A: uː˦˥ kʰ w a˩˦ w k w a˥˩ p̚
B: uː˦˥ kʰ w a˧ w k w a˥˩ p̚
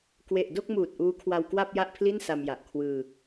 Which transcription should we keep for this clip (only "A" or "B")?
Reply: B